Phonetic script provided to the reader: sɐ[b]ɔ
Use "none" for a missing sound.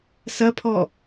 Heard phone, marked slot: pʰ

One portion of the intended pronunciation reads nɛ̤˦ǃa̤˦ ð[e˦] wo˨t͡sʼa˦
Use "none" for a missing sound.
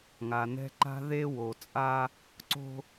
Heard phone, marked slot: e˦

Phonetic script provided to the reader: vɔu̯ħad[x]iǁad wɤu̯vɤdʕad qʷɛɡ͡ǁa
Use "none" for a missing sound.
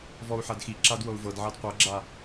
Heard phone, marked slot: x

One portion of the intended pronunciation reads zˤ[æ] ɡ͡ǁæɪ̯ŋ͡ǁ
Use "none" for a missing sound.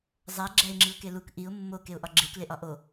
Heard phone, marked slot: æ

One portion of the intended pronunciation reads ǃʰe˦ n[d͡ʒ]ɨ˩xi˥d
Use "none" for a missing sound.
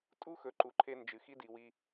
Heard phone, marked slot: d͡ʒ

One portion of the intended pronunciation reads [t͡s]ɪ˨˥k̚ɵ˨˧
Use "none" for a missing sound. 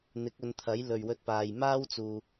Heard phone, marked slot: n̪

